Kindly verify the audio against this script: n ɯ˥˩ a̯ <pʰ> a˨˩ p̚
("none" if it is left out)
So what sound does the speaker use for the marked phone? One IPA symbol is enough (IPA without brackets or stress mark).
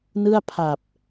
pʰ